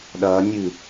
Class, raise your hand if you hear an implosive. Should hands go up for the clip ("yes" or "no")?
yes